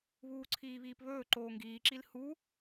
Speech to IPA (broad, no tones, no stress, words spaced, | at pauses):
βuːǀʰiːβiːpβɵː ǃoːŋɡiːǁil hu